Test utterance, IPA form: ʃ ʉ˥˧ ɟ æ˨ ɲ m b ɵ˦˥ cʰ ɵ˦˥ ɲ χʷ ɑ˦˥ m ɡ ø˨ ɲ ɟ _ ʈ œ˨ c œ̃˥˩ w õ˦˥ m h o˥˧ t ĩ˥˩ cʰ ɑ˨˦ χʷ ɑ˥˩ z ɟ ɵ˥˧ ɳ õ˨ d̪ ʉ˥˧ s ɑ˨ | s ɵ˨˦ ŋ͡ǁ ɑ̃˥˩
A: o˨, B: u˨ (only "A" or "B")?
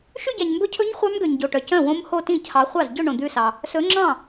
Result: A